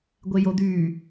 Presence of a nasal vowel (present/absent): absent